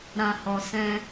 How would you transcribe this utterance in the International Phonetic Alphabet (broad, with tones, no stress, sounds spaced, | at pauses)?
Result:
ɾ ã˨ h ɔ˨ s ɛ̃˧